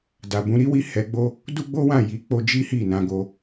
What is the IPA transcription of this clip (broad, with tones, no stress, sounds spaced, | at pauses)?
d a˨ b ũ˨˦ ɾ i˦ w i˧ h ɛ˧ ɡ͡b o˦ | d u˦ ɡ͡b o˦ w ã˦˨ j i˨˦ k͡p o˧ d͡ʒ i˦ h i˦˨ n ã˧ ɡ o˧